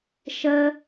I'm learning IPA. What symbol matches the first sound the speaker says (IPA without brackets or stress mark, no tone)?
ʃ